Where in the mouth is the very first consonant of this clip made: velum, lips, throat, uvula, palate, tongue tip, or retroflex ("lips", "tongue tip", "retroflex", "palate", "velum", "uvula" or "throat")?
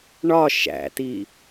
retroflex